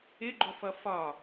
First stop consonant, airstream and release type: click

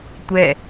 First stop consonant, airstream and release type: plain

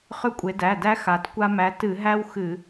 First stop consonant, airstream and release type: ejective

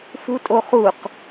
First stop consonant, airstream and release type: ejective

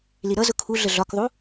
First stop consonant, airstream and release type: aspirated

